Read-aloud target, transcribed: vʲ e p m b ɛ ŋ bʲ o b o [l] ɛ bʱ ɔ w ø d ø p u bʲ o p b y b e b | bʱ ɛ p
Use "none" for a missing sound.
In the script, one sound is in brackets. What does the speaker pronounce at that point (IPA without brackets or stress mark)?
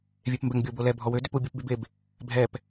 l